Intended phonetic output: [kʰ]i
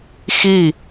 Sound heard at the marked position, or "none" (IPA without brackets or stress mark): x